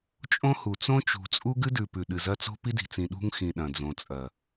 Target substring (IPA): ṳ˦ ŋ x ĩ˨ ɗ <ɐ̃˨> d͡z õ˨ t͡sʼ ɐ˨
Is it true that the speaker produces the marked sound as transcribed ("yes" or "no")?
yes